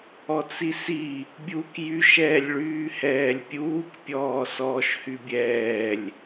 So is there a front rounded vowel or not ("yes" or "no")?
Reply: yes